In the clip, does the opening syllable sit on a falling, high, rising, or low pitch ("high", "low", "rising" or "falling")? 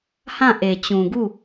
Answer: falling